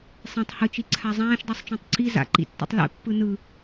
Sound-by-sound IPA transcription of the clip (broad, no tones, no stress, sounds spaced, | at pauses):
sˤ ɛ̃ tˤ h ɯ t͡ʃ i ǀʰ a zˤ ãː ʃ dˤ i sˤ t͡ʃ õ tˤ ǀ i z a̰ ǃ ḭ tː ṵ tˤ l ɛ̰ pː ɯ n ɯ